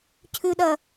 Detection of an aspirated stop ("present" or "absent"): present